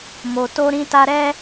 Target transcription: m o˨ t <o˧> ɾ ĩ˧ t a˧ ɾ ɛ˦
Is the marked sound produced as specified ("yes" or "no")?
yes